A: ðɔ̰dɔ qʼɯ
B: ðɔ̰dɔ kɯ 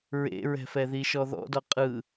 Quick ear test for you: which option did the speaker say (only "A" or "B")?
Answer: A